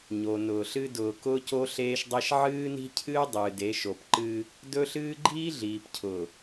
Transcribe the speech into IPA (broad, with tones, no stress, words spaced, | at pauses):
ɲo˨nʊː˨ɬɨ˦ dʊː˨kʊː˦co˦ ɬeː˦ʃdˤe˦ʃ ʕɨː˦ni̤˦cʰɨː˦ dˤɨː˨de˨˦ ʃo˨pǃɨː˦ | dɵ˦ɬɨː˦ ɡ͡ǃiː˦ɮiː˨pcʰʊː˨